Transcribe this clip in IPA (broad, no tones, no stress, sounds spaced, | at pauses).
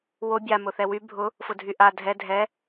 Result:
w o bʲ a m ʊ θ ɛ w y bʱ ʊ | f ʊ dʱ y ʔ a dʱ ɛ dʱ ɛ